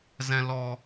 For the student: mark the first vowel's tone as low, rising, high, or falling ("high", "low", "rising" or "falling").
low